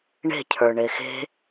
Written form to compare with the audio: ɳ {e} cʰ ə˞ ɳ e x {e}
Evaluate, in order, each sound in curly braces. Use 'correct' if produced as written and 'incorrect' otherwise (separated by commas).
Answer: incorrect, incorrect